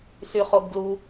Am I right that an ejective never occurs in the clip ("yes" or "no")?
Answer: yes